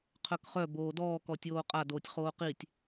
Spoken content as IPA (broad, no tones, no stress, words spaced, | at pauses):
qʰœkχœ boːdɔːkɔtʲoː qʼadoːtʲ χoːqitʲ